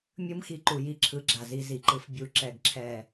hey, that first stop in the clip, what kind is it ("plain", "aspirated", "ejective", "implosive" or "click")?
click